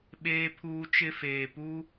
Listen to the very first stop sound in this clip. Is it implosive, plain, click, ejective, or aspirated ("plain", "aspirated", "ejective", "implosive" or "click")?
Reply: implosive